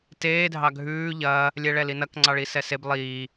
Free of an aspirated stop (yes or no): yes